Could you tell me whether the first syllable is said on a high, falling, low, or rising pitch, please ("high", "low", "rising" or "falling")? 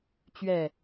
falling